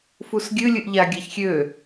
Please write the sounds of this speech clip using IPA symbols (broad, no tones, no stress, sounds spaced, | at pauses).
f u s ɡʲ ɨ lʲ ɨ ʔ ʎ a ɡʲ a ç xʲ ø